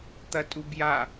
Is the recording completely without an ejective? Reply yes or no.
no